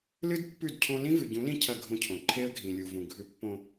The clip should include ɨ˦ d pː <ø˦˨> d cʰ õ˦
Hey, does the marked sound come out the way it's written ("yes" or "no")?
no